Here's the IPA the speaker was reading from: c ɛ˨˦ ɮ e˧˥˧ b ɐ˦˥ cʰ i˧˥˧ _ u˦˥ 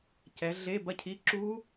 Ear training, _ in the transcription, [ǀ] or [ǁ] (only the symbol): ǁ